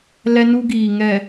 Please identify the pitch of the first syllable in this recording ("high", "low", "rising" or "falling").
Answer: high